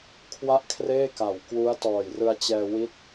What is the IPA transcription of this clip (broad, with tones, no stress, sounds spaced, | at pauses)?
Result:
kʰ w a˥˩ ʔ kʰ r eː˥˩ k a˨˩ w k w u˦˥ a̯ t ɔː˨˩ j r ɯ˧ a̯ t͡ɕ ɛː˧ w i˦˥ t̚